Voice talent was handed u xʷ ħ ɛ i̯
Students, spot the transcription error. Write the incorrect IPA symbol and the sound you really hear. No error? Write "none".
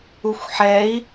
none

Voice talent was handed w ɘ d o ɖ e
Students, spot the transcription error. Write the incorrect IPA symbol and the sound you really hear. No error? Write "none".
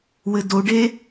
none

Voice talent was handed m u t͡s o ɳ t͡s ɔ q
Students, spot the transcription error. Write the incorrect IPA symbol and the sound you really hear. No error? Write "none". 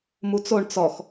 q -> x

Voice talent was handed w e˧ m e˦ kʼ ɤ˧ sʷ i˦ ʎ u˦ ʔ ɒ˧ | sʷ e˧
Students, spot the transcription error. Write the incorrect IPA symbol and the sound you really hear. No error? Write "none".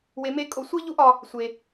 ɤ˧ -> o˧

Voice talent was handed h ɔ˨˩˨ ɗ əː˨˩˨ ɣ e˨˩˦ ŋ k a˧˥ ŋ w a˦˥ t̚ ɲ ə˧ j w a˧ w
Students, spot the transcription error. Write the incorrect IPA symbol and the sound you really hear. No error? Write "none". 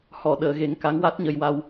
none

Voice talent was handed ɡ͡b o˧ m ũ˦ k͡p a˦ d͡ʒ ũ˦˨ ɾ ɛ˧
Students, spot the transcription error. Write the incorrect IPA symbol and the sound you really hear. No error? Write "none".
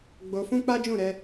m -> f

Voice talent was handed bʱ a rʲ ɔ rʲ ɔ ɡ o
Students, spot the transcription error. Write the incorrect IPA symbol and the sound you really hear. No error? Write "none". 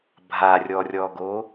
none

